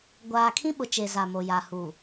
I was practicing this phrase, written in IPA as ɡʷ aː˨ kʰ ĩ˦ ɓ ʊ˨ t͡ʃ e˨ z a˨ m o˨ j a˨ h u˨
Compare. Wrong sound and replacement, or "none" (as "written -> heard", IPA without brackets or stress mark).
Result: none